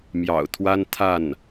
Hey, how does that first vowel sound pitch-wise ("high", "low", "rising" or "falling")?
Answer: low